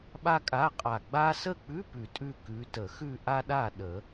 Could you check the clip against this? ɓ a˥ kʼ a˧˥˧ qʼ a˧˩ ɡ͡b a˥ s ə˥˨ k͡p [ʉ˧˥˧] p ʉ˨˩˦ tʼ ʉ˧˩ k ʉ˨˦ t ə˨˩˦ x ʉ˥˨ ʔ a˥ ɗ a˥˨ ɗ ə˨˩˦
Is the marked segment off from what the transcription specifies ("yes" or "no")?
no